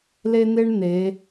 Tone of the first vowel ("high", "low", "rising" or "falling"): high